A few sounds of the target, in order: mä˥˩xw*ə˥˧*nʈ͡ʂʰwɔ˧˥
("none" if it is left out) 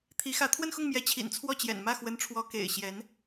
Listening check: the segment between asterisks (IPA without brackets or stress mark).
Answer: ə˧˥